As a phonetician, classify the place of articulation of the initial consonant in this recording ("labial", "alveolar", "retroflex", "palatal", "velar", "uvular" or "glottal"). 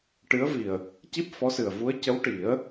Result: retroflex